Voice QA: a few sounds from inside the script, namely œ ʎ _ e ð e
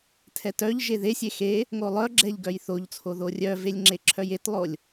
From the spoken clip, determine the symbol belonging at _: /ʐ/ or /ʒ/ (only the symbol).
ʒ